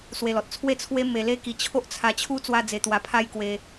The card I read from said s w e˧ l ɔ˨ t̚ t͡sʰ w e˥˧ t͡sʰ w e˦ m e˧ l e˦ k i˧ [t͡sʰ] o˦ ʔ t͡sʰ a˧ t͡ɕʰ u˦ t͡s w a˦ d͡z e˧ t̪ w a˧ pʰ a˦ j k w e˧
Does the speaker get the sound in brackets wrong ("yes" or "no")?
yes